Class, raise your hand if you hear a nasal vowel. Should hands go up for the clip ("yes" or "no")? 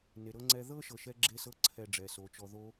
no